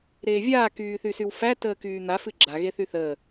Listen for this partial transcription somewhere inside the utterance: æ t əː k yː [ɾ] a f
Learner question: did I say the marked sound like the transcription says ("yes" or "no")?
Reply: no